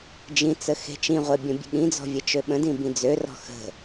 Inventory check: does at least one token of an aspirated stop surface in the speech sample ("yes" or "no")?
no